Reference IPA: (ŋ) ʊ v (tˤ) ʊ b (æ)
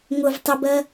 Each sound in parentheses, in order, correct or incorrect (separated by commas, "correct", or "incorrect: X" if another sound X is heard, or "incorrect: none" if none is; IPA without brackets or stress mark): correct, correct, incorrect: ɜ